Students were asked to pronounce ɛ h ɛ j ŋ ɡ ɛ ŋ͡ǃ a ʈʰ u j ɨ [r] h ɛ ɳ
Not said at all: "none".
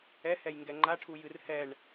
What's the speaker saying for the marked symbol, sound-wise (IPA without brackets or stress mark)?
r